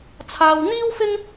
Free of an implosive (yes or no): yes